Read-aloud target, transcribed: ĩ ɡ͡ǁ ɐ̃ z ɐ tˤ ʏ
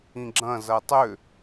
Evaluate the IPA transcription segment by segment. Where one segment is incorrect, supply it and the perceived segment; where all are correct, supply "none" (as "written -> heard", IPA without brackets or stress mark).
none